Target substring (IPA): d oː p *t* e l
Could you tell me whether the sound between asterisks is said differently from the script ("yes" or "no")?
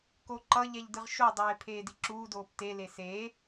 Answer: no